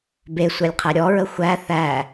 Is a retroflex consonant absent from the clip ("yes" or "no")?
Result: yes